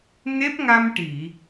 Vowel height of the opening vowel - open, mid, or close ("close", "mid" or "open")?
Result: mid